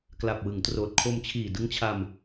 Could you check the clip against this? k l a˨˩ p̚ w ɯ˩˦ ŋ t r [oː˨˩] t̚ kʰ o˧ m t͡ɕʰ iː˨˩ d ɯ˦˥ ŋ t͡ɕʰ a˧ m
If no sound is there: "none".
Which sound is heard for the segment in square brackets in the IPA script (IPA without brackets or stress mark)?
oː˨˩